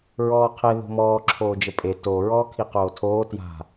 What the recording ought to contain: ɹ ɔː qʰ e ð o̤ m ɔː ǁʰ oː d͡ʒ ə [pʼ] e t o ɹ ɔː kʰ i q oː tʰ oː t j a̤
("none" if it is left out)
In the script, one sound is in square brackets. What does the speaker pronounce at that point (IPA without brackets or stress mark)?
pʼ